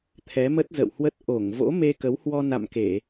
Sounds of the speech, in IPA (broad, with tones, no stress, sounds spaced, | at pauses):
t̪ʰ ɛ˨˦ m ə˦˥ t̚ z ə̰˧˨ w h w ə˦˥ t̚ ʔ o˧˩ ŋ v o̰˧˥ m e˧ k ə˨˦ w h w ɔ˧ n a̰˧˨ m k e˧˩˨